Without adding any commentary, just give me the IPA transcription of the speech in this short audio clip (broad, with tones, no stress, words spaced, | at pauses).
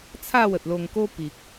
t͡sʰa˥˧wə˨t̚lo˧ŋko˦ pi˨k̚